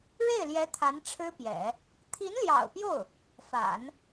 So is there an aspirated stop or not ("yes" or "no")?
yes